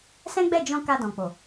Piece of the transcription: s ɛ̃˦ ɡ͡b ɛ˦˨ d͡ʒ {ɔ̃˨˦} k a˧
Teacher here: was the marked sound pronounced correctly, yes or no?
no